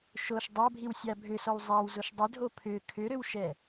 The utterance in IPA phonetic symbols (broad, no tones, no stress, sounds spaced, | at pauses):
ʃ o ʃ dˤ a bʱ i w sʲ a bʱ ʏ s ɔ w zˤ a w z o ʃ dˤ ʏ dʱ o pʰ ʏ kʰ ʏ ɾ ʏ w ʃ ɛ